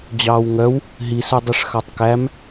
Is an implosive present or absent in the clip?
absent